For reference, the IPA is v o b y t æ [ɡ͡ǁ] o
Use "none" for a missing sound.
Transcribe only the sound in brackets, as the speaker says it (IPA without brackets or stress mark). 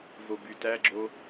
ɡ͡ǁ